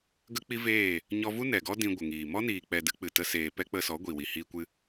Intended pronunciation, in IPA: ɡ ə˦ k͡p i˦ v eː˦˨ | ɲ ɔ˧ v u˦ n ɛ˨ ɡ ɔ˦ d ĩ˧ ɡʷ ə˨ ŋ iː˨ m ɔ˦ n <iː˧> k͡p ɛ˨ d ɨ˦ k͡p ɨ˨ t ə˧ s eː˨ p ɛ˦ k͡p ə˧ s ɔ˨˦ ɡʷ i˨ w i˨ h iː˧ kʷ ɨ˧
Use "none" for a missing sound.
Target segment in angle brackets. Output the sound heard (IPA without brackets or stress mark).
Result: iː˨